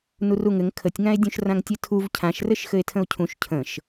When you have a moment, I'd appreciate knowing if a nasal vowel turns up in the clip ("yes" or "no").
yes